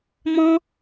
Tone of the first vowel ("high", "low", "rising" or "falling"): high